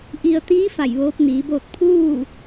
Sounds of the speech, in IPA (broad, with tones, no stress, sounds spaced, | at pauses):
ʔ i˩ ə̯ t̪ iː˧˥ f a˧˩ j ʋ oː˧˥ p̚ n iː˩˧ b oː˥˨ t̚ pʰ uː˥˨